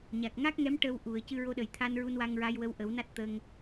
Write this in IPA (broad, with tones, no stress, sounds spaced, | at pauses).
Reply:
ɲ a˨˩ k̚ ŋ a˦˥ k̚ ŋ ɛ˧˥ m ʈ ə˧ w ʔ u˨˩˨ ə̯ c ɨ˧ ɹ o˧ ɗ ə˨˩ j t̪ʰ a˧ n ɹ u˧ n w a˧ ŋ ɹ a˧ j w ə˧ w ʔ ə˨˩˦ w n a˦˥ t̚ t̪ ə˧ ŋ